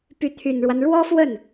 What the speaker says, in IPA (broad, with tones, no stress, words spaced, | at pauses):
py˧˥t̪ʰy˨˩nɻwa˦n ɻwɔ˥fwə˥˩n